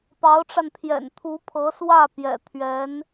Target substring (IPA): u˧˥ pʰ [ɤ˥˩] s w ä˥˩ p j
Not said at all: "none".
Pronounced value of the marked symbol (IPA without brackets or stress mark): ɤ˧˥